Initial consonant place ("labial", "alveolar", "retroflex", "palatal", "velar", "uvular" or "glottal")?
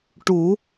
retroflex